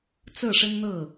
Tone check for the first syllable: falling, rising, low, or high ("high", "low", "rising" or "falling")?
falling